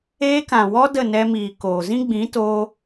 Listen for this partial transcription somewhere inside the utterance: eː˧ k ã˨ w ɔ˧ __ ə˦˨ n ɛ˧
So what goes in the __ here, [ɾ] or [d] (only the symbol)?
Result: d